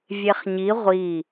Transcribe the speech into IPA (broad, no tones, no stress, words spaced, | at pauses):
vʲeχɲi ʁʷi